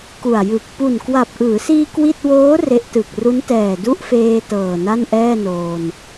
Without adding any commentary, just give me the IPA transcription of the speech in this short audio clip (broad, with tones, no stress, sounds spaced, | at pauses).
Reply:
k u˨˩ a̯ j ɯ˨˩ k̚ p u˨˩ n k w a˨˩ p̚ ʔ ɯː˩˦ s iː˧ k w i˥˩ t̚ w oː˦˥ r e˦˥ ʔ t ɯ˨˩ k̚ r u˦˥ n t ɛː˨˩ d u˥˩ ʔ f eː˧ t ɤː˨˩ n a˥˩ n ʔ ɛː˥˩ n oː˧ n